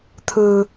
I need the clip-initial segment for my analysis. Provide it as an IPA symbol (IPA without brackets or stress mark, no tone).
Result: t̪ʰ